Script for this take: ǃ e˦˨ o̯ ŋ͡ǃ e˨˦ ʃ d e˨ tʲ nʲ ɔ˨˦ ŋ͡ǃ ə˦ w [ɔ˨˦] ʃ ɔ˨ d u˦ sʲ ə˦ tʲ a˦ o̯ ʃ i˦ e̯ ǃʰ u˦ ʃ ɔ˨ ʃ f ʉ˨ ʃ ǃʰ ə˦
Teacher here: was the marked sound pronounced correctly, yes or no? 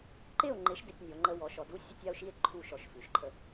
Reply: yes